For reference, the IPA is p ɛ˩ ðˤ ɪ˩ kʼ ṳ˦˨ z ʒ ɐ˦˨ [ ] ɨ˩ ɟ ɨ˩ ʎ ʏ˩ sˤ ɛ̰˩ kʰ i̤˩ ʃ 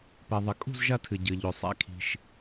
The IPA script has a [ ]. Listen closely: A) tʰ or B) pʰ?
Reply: A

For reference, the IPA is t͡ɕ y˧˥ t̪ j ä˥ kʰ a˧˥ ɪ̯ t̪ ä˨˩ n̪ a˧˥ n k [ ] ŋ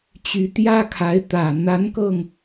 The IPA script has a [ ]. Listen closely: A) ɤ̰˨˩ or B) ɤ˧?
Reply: B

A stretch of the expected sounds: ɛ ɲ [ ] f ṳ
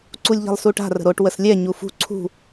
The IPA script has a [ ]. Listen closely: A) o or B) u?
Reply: B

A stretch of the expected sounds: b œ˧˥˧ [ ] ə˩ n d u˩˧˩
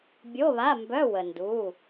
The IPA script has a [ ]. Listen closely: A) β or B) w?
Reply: B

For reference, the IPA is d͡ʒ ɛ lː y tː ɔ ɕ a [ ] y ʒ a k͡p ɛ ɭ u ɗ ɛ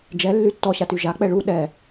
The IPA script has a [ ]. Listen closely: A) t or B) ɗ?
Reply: A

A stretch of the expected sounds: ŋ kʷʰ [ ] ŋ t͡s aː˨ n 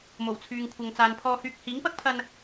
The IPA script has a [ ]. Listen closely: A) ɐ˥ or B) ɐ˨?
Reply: B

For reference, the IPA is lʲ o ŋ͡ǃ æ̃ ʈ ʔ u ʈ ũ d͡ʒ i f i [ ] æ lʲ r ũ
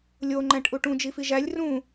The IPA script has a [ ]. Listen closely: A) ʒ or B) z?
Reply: A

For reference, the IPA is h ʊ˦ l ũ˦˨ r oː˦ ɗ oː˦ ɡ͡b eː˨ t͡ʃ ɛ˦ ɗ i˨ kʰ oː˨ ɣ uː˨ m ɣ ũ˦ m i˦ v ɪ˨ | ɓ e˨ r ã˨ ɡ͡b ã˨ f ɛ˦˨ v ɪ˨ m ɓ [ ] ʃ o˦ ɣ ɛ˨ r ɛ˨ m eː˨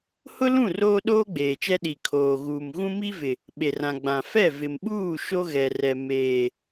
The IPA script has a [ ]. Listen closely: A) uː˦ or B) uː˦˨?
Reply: B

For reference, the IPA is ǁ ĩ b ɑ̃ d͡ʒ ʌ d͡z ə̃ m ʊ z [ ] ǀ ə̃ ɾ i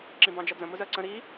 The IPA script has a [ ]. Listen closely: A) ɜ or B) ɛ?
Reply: A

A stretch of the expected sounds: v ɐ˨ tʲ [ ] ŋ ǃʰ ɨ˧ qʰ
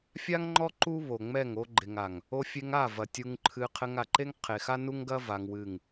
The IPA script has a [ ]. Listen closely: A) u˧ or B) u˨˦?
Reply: A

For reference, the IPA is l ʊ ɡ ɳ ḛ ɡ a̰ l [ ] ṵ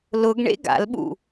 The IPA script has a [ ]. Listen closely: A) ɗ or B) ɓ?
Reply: B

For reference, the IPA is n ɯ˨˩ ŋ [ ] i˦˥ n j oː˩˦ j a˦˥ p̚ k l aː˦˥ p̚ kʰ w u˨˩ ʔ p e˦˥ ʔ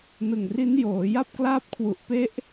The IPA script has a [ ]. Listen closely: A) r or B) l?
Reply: A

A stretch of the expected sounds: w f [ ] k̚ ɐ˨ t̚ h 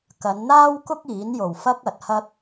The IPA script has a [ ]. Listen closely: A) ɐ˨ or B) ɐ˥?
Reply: B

